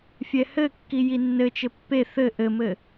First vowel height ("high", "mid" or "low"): mid